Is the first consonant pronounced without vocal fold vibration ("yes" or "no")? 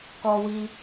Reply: yes